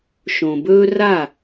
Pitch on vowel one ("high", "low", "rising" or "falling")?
low